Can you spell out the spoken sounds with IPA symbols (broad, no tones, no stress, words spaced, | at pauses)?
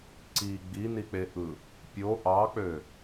ǀi ɡ͡binik͡peʔɯ | pʲo ʔɑk͡pø